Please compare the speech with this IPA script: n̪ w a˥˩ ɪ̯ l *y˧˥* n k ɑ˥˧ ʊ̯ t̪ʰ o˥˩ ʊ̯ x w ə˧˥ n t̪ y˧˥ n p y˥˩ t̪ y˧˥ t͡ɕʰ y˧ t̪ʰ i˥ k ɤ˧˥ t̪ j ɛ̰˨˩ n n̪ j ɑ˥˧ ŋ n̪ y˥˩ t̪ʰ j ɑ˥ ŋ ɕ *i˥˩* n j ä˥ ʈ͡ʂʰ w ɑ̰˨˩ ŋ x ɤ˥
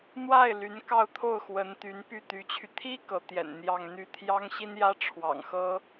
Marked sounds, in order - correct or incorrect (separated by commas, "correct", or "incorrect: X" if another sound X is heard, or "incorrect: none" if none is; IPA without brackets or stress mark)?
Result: correct, incorrect: i˥